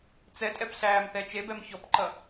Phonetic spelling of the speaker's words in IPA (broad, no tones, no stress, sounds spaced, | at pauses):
t͡s ɛ tʼ ɛ p ɬ æː m θ ɛ t͡ʃ e b ɛ m ç ɔ p ǃ ʌ